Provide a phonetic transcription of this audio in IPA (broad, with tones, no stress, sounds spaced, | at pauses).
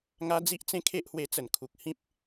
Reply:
ŋ a˦ d͡z i˦ ʔ t͡s ẽ˦ kʰ e˦ ʔ h w e˧ t͡s ə˨˩ n kʰ u˨ k̚ h ĩ˦ p̚